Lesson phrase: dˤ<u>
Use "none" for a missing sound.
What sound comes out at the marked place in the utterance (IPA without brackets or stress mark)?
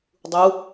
u